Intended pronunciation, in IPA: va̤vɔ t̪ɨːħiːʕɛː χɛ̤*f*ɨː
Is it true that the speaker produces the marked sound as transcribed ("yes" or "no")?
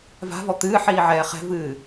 no